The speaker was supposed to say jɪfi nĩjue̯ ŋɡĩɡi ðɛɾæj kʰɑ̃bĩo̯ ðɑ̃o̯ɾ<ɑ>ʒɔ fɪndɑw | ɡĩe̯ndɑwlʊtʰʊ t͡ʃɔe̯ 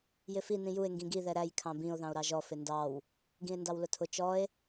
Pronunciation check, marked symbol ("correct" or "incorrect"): correct